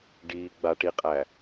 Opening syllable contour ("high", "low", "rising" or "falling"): low